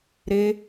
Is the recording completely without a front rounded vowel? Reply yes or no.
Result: yes